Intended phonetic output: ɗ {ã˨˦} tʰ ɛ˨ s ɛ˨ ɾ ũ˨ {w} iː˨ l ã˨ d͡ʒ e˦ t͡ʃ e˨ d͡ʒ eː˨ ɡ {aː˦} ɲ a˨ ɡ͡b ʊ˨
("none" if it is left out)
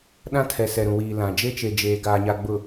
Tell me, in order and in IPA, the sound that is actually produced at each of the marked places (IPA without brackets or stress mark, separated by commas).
ã˦, w, aː˨